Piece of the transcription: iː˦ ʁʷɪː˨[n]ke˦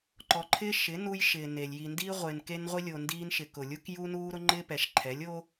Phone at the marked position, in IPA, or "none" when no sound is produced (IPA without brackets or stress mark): n